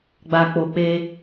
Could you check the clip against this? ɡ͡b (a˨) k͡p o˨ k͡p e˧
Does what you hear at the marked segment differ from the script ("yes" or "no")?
no